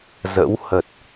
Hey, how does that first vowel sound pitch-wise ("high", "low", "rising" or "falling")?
rising